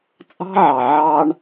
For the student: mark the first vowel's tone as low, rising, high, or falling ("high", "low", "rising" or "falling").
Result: high